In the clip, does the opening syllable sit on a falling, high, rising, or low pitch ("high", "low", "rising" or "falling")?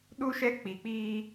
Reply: high